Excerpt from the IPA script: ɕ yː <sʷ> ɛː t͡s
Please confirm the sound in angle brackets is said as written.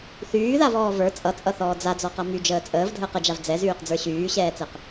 no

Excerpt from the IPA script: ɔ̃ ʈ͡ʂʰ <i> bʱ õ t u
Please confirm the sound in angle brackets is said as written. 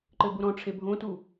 no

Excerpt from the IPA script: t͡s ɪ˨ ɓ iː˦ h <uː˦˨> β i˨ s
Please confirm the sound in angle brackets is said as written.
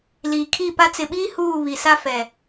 yes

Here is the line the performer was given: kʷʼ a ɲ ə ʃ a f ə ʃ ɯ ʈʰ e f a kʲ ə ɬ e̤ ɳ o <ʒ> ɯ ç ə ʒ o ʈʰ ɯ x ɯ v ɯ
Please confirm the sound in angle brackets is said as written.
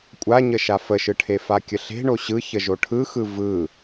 no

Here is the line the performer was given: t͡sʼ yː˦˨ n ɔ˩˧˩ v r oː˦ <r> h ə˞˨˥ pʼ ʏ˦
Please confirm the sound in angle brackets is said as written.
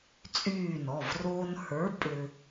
no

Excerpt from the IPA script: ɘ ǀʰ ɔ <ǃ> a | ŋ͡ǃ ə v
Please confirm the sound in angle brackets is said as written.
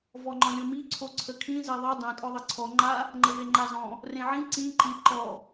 no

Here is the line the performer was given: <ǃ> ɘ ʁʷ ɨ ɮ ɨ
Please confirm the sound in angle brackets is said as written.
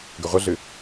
no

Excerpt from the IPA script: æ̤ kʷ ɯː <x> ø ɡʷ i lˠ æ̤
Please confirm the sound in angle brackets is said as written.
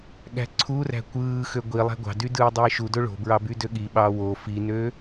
yes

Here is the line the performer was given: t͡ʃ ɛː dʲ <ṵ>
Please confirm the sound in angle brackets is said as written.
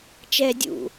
yes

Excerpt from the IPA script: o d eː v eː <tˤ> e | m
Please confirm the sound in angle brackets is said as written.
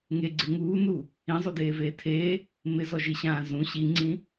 no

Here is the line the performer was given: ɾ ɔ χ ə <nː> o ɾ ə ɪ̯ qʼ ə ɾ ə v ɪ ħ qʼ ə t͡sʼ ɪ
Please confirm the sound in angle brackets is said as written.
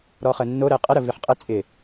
yes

